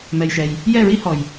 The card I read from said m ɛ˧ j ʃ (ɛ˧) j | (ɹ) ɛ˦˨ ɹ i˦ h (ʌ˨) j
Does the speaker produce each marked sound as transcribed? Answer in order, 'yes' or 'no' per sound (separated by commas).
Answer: yes, no, no